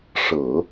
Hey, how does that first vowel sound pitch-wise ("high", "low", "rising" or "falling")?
low